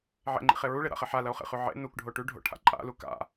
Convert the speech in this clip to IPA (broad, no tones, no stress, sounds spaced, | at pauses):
ʕ ḛ ŋ͡ǃ ḭ χ e ɹ u ɭ e ɾ a̰ χ e ħ a l ɐ o̯ χ ḛ χ ʉ ʕ ḛ n u k ɖʱ o ʈ ʉ ɖʱ o̰ ʈʰ a̰ ǃʼ a̰ l u k a̰